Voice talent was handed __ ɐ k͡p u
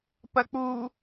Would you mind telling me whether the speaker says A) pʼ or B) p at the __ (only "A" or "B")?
B